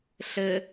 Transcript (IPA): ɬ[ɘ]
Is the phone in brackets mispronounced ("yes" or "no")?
no